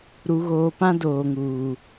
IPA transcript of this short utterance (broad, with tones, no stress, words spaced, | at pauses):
ɾu˨ɣoː˨pã˦ doː˨ŋuː˨